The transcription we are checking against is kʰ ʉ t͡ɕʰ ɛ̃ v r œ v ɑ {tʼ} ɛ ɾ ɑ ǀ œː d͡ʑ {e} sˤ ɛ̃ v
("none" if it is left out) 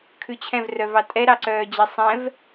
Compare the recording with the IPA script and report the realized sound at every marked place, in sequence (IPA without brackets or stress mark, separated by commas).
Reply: tʼ, e